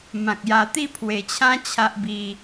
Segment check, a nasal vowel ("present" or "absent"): present